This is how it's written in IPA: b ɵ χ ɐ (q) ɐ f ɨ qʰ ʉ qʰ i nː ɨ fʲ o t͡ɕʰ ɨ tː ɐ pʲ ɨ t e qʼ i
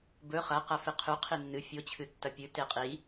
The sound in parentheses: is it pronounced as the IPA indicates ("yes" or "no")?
yes